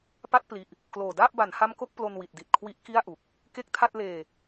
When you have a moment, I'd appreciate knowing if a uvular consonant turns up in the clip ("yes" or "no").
no